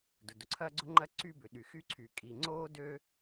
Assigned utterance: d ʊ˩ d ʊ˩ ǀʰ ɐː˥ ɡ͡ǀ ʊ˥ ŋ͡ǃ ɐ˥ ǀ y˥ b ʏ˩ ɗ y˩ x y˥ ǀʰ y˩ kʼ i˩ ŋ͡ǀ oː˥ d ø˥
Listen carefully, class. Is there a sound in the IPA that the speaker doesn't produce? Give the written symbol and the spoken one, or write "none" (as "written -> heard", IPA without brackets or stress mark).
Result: none